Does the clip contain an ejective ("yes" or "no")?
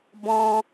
no